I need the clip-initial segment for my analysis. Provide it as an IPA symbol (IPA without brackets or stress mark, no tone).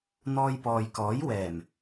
n̪